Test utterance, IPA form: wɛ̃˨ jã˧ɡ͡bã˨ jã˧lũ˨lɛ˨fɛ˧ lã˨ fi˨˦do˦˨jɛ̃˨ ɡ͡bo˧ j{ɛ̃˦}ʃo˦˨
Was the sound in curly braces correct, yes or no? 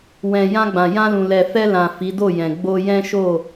yes